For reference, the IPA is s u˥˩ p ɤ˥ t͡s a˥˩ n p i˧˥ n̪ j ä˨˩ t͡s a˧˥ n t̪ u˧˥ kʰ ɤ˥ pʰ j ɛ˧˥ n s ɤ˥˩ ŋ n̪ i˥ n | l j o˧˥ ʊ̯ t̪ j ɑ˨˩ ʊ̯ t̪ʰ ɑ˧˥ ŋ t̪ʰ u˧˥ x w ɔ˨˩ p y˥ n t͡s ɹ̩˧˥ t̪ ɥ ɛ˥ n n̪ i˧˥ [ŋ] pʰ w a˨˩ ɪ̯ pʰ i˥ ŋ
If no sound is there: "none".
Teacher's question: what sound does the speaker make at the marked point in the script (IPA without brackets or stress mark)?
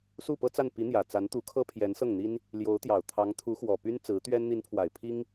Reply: n